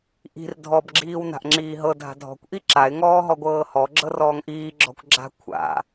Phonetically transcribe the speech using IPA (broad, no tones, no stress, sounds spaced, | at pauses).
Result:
ʔ i̤ r dʱ ɔ b ɡ͡ǁ iː w n a̤ ʔ ŋ͡ǁ iː ɦ ɤ dʱ a̤ dʱ ɔ̤ kʷ ʔ i ǁ a ɪ̯ ŋ ɔː ɦ ɔ ɡʷ ɤː h ɔ ɡ͡ǁ ɤ r ɔː ŋ ʔ iː ɡ͡ǁ ɔ̤ kʷ ɡ͡ǁ a̤ kʷʰ a̰